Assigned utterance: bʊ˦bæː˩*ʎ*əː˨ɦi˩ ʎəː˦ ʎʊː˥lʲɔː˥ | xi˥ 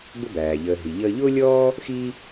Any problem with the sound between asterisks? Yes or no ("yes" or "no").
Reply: no